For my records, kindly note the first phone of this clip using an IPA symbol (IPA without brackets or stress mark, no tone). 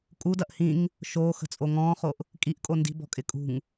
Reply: kʼ